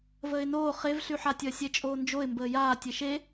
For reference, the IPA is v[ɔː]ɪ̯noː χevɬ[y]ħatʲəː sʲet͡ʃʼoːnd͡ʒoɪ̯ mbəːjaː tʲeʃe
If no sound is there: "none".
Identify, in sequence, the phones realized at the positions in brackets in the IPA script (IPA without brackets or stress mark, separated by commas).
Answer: əː, y